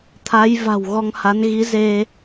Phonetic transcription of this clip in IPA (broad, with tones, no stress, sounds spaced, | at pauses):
t̪ʰ a˨˦ j v a̤˨˩ w ɣ ɔ˧ ŋ h a˨˦ n ɣ i˨˦ z e˧